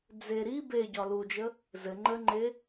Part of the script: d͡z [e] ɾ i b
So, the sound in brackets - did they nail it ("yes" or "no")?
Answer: yes